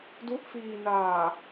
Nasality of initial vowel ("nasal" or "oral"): oral